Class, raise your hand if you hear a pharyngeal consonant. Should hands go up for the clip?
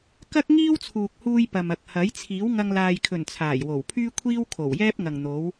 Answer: no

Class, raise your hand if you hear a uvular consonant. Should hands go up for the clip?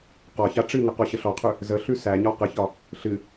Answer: yes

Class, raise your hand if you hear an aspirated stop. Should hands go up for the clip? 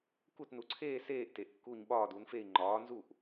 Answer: yes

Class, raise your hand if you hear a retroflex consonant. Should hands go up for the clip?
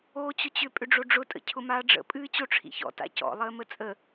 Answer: yes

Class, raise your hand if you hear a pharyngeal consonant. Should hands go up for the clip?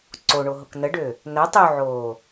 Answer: yes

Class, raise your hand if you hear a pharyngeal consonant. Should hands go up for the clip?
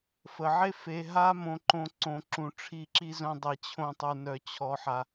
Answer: yes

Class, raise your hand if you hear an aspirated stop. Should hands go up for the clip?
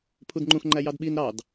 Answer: yes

